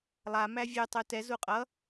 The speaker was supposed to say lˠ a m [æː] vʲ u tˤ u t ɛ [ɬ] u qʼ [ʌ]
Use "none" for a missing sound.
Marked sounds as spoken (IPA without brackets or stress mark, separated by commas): æ, z, ʌ